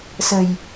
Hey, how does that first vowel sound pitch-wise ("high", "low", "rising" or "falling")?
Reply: low